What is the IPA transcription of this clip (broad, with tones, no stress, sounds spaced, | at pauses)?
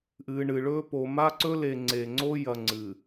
ʔ ɨː˨ ɳ ɨ˨ ɭ ɵː˦ p o˨ m a˦ ǀ ɵ˦ l e˨ ŋ͡ǀ e˨ ŋ͡ǀ o˦ j ɐ˨ ŋ͡ǀ ɨ˨